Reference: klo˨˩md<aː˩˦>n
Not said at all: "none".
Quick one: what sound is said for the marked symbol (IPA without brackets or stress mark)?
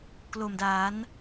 aː˩˦